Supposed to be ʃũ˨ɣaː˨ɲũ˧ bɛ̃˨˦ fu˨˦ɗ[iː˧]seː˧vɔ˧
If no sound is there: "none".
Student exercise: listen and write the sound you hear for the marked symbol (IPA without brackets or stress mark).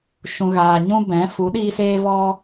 iː˧